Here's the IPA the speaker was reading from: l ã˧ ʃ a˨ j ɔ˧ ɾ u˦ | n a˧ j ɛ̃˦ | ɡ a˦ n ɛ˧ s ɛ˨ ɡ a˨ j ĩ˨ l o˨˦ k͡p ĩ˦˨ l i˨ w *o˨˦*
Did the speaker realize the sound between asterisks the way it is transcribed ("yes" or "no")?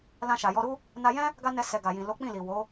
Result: yes